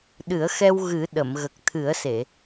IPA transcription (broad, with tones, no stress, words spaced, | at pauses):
ɗɨ˨˩˦ə̯xɛ˧w ɣɨ˨˩˦ ɗə˨˩˨mɣə˨˩k̚ t̪ʰɨ˨˩˦ə̯se˨˩˨